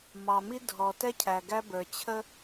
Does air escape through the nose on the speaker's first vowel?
no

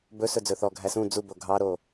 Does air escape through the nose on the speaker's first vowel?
no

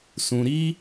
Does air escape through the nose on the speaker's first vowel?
yes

